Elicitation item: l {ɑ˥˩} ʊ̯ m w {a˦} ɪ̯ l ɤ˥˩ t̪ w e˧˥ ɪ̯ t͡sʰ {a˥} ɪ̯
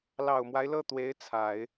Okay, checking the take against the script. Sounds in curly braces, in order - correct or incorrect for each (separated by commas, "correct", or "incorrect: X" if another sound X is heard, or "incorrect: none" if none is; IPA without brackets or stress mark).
incorrect: ɑ˨˩, correct, incorrect: a˨˩˦